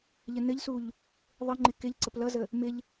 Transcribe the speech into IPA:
ʎənɘʎsuʎ | ðˤɘŋ͡ǃɪ kɪʎ ǀəplʌzə | mɪʎ

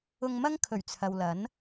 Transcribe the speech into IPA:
ʊ˧ŋmɐ˥ŋkʰɵ˨˩ɥ t͡sʰɐ˨wlɐ˨˥n

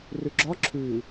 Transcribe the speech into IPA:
rʉɡ͡ǁɒ ǁʰʉ

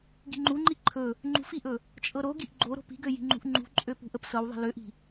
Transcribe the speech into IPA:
ɡi̤ŋ͡ǃuŋ͡ǃi ǃʰɵ | ŋ͡ǃṳfiʔɵ | t͡ʃʼɤɾoɡiʔ ɡ͡ǃo ɾo̤pi̤ɡø ji̤ŋ͡ǃṳʔŋ͡ǃṳǃʼø pṳʔəpsɤwðˤi̤ løʔi̤

